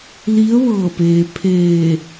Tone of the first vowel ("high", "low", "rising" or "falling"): rising